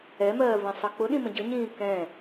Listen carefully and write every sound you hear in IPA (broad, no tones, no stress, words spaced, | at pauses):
ɛmɜːvɛ̃sˤə k͡pʊɗĩmə̃ ɟəɲĩː kɛ̃